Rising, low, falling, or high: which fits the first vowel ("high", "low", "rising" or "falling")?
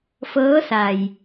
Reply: rising